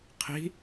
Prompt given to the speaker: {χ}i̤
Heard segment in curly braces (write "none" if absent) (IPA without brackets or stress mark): qʰ